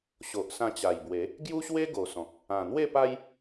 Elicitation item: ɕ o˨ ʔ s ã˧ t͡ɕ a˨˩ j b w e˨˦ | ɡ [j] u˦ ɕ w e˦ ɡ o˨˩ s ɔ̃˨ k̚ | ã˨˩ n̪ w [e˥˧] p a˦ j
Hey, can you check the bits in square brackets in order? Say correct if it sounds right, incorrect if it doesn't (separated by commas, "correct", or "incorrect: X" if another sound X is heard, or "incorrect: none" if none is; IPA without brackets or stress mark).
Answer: correct, correct